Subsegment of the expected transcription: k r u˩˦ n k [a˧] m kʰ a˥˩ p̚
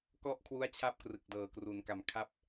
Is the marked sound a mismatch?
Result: yes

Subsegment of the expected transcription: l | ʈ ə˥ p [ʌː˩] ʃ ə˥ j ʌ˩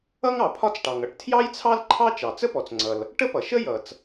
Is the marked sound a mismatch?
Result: yes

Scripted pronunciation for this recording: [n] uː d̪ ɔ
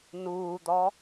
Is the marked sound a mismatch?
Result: no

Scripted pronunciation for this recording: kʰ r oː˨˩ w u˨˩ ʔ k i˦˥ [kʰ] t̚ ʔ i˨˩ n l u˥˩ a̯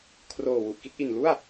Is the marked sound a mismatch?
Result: yes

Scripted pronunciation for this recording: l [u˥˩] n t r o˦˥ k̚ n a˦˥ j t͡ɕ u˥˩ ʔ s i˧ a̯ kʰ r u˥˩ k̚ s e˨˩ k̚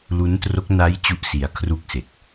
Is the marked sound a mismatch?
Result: yes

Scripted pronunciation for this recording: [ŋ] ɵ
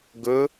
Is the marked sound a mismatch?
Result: yes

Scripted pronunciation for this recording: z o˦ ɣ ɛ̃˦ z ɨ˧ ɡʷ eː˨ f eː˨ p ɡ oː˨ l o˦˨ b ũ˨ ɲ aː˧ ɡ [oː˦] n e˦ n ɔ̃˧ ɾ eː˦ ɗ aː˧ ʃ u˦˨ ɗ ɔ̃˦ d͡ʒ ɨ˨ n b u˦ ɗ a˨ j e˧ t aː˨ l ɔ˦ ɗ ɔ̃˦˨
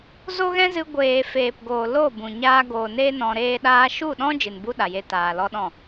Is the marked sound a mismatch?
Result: yes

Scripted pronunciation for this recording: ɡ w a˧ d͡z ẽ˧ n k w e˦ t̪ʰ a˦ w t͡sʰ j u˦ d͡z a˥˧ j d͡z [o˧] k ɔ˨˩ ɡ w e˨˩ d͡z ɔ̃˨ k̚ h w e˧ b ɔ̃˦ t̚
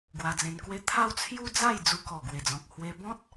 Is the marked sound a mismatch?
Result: yes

